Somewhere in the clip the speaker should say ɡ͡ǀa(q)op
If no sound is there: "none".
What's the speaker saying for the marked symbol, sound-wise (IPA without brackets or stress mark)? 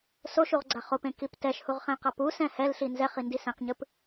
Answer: χ